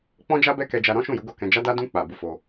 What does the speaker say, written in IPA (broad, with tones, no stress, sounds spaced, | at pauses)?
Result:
k͡p ɔ̃˦ d͡ʒ a˦ b ɛ˦ k ɛ˧ d͡ʒ a˧ ɾ ɔ̃˦ ʃ ũ˦˨ j u˨˦ ɡ o˦˨ k ɛ̃˧ d͡ʒ a˦ d a˦ d ũ˦ k͡p a˧ b u˧ f o˧